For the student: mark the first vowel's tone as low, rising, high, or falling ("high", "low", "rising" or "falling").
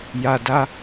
low